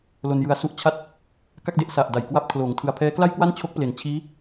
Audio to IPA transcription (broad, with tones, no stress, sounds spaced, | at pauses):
l o˧ n j ɯ˧ a̯ s u˥˩ ʔ t͡ɕʰ a˥˩ t̚ | k a˥˩ k̚ d e˦˥ ʔ s a˨˩ ʔ d a˨˩ j k w a˥˩ p̚ kʰ l oː˨˩ ŋ tʰ ɯ˨˩ a̯ pʰ ɛː˦˥ k l a˥˩ j k w a˥˩ n t͡ɕʰ o˦˥ k̚ p l e˩˦ n t͡ɕʰ iː˦˥